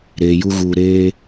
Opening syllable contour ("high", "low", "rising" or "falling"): low